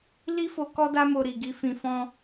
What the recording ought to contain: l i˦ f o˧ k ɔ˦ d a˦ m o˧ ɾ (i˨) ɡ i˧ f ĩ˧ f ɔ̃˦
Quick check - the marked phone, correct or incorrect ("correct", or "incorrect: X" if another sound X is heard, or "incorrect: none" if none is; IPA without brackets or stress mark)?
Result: correct